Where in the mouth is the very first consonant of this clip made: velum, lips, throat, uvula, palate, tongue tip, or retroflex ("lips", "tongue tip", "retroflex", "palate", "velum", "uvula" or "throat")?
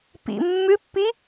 lips